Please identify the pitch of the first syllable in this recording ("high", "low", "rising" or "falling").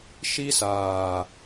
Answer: high